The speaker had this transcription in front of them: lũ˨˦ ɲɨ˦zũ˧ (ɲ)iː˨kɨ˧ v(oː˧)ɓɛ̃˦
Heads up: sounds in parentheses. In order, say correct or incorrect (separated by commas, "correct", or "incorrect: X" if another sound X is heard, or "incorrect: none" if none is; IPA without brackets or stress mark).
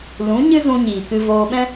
correct, correct